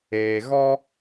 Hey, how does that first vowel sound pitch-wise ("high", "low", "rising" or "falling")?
low